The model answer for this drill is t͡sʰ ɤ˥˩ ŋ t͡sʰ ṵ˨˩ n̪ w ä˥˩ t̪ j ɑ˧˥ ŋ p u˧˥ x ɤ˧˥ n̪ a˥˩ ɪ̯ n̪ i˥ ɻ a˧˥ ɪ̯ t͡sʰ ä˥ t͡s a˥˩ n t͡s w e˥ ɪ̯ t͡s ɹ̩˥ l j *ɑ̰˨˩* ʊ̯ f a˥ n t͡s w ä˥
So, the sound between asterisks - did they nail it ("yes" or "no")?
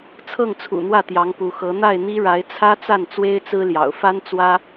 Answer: yes